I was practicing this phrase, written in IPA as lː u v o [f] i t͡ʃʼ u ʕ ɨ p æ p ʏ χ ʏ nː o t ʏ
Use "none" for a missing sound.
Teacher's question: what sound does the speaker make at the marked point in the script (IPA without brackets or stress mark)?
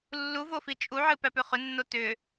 f